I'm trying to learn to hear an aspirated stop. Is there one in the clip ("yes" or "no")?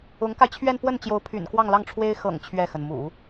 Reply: yes